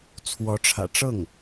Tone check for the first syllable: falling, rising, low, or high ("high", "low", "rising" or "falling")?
rising